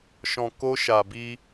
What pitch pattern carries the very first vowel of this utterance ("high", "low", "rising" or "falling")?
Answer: low